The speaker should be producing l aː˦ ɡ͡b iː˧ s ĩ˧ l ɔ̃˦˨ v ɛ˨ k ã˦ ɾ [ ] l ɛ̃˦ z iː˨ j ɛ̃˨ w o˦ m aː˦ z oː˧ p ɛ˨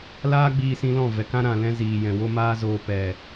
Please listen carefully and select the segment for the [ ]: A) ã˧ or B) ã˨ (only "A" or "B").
B